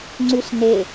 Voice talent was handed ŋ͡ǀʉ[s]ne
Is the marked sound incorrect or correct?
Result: correct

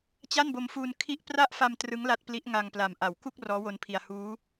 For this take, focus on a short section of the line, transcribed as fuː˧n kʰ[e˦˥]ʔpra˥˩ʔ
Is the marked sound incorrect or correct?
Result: incorrect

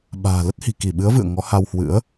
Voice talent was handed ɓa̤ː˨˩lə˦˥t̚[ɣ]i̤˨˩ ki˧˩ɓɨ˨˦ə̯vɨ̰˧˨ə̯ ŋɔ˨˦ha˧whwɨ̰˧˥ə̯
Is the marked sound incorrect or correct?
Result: incorrect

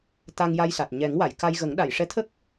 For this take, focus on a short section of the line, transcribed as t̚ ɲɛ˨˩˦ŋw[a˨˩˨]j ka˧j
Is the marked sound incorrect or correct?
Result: correct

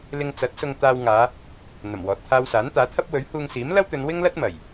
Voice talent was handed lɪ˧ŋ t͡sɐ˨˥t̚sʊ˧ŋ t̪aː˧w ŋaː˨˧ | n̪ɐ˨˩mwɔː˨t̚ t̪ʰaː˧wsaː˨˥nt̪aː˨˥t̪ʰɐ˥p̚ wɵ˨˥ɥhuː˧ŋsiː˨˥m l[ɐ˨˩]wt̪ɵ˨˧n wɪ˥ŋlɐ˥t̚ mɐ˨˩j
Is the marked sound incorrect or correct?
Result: incorrect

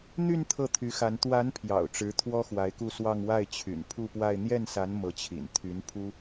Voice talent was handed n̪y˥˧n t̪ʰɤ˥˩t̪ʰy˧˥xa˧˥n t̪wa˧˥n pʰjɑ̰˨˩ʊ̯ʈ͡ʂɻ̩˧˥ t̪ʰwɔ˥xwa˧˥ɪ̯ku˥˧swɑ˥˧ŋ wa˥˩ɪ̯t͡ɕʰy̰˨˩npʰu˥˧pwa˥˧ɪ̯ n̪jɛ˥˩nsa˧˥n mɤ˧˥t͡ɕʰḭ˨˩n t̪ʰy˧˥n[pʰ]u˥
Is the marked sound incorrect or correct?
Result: correct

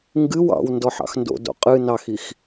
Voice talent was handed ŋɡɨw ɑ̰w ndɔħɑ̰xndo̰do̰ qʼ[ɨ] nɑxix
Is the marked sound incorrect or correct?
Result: correct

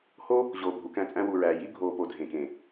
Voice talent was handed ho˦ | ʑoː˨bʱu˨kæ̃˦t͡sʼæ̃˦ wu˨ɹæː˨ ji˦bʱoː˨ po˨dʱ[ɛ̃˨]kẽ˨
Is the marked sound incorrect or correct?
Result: incorrect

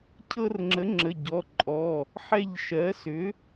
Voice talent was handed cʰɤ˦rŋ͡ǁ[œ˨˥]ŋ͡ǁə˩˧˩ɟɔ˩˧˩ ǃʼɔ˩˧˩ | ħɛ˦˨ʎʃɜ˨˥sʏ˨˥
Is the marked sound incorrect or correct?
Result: incorrect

